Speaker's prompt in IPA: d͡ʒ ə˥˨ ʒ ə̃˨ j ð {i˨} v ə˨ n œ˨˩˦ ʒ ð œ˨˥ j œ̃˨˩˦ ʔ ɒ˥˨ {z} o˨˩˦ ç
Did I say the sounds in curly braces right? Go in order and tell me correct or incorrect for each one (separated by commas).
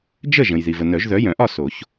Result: correct, incorrect